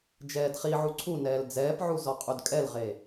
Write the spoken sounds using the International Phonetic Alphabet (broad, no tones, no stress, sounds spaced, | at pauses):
d͡ʒ ɛː d χ i ʕ u ǀʰ u n ɛː l d͡z ɛː p ʕ u z ɔ qʼ u d kʼ ɛ l ʁ e